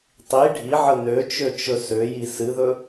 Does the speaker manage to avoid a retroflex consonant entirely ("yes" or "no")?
no